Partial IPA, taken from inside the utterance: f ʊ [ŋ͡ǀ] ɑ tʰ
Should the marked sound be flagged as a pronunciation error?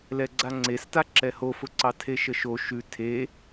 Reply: yes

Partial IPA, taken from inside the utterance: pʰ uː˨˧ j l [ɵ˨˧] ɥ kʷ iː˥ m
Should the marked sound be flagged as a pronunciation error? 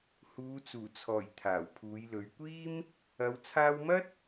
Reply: no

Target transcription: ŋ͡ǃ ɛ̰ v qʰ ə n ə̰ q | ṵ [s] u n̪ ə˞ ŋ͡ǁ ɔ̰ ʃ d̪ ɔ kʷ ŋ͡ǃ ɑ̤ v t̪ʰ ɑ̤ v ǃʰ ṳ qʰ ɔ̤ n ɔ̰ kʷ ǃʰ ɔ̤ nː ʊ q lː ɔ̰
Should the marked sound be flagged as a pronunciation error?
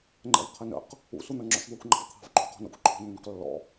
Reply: no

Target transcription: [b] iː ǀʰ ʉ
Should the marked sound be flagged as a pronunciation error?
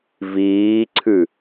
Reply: yes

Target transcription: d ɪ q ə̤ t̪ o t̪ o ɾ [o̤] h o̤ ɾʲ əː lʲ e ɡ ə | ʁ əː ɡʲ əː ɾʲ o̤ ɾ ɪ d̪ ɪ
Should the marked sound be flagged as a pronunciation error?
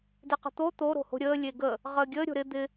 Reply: no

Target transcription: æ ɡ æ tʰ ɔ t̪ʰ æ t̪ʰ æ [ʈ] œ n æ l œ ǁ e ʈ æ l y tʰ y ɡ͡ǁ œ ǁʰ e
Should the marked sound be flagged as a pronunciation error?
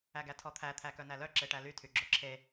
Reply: yes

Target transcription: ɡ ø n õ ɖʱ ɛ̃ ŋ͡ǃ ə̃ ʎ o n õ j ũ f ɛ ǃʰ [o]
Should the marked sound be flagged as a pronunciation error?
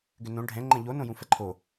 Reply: no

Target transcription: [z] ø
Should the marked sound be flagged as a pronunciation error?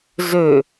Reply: no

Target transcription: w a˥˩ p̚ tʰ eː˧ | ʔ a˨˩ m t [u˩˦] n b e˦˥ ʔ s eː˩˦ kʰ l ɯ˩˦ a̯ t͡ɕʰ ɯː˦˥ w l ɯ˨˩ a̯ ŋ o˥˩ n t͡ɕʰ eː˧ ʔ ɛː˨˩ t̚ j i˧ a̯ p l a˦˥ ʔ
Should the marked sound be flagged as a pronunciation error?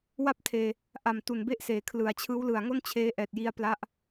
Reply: yes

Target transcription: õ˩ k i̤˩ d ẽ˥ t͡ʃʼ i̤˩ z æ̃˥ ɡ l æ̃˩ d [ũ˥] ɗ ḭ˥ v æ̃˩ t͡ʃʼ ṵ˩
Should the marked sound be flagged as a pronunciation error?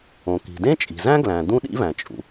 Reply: no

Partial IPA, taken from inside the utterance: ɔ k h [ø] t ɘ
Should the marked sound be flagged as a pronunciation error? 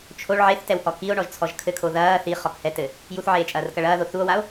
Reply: yes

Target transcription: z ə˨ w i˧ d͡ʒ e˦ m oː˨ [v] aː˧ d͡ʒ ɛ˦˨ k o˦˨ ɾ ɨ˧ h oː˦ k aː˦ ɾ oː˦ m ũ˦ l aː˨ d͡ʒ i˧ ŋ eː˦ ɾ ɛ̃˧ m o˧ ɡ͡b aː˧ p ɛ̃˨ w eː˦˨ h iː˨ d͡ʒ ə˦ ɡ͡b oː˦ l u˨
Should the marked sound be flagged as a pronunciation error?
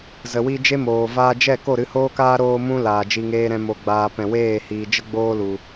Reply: no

